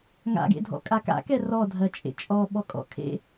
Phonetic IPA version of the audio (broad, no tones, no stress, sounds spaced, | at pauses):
ŋ a̰ ɡ ḛ dʱ ɔ̰ kʼ a k a̰ k ɛ r ɔ dʱ ɜ t͡ʃʼ ḛ t͡ʃʼ ɔ ɓ ɔ kʼ ɔ̰ kʰ ḛ